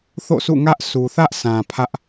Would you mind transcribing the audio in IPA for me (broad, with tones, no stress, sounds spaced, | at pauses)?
θ o̰˦˨ sʰ ṵ˦˨ ŋ ä˦ ʔ sʰ u˨ θ ä˦ ʔ sʰ ã˨ pʰ ä˦ ʔ